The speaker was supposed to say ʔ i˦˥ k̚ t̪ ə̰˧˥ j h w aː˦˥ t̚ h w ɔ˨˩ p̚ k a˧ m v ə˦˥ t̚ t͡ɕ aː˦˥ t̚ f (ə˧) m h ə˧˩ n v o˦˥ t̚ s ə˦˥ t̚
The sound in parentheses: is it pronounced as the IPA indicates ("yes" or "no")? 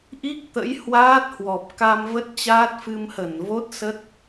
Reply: no